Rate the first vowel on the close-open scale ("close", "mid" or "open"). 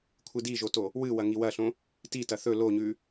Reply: close